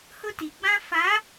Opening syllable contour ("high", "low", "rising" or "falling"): high